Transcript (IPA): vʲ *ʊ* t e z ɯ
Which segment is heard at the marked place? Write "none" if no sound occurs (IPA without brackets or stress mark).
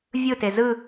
ɯ